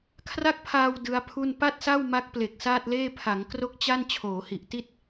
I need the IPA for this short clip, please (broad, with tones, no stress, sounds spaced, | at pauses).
kʰ r a˥˩ k̚ pʰ aː˧ w d ɯ˦˥ a̯ pʰ u˥˩ n p a˥˩ t̚ s a˥˩ w m a˦˥ k̚ p l e˨˩ k̚ s aː˥˩ t̚ l eː˥˩ pʰ a˩˦ ŋ k r o˥˩ k̚ t͡ɕ a˥˩ n t͡ɕʰ oː˩˦ h i˨˩ ʔ t i˥˩ t̚